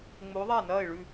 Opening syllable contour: rising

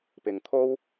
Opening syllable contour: low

